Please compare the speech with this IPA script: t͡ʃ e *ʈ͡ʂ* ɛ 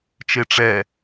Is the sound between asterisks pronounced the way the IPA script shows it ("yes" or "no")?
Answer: yes